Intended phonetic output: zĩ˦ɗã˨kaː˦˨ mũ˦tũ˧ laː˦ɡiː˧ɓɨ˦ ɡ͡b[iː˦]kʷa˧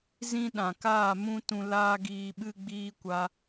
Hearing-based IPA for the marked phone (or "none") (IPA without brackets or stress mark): iː˦